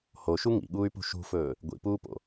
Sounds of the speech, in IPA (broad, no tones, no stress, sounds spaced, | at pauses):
h o ʃ u ŋ ḭ ɠ uː y̯ p ṳ ʃ ṳ f ɵː | ɡʷ ḭ p uː p o̰